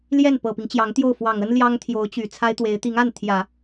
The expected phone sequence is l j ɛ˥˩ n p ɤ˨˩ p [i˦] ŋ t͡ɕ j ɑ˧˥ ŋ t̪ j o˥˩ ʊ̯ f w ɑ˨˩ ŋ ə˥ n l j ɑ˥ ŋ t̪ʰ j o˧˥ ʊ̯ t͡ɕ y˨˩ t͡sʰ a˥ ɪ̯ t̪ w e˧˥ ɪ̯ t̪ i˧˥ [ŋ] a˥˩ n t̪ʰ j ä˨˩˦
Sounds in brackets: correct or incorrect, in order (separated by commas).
correct, correct